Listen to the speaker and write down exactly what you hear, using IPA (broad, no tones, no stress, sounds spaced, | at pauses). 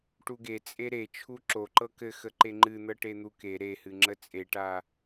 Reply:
ʈ u ɡ e t͡sʼ e ɾ e t͡ʃʰ u ǁ o ǃ ɤ k ɘ x ə ǃ e ŋ͡ǃ ɨ n̪ ɤ ʈ e n̪ u k e ɾ e h ɨ ŋ͡ǁ ə t͡sʼ e ʈ a